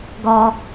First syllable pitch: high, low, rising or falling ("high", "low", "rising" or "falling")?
high